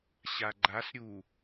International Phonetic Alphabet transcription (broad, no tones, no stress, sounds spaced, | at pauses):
ɕ a ɡ͡ǃ a s ɾʲ u